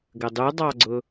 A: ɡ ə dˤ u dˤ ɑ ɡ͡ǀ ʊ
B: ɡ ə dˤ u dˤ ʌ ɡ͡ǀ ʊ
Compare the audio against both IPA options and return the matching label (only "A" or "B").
A